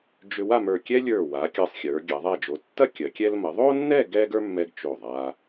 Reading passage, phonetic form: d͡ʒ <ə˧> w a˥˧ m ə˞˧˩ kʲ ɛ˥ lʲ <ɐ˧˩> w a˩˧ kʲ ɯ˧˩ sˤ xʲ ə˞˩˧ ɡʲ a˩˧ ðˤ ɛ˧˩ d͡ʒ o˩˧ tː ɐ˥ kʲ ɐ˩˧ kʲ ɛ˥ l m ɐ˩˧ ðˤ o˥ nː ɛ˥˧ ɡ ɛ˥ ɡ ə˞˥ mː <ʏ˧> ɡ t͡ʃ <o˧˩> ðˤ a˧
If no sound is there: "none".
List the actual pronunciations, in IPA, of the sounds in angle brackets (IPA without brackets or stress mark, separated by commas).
ʏ˧, ə˞˧˩, ɛ˧, o˧˩